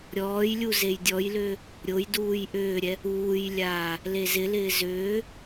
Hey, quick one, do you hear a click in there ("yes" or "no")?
no